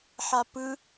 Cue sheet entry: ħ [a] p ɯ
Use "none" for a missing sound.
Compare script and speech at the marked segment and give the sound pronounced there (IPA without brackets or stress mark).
a